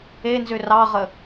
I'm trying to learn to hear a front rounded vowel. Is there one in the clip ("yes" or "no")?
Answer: yes